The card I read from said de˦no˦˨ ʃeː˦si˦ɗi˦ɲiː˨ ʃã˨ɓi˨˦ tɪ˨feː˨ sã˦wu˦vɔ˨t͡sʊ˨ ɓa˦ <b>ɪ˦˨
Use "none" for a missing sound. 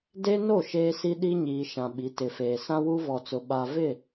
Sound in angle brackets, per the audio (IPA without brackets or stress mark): v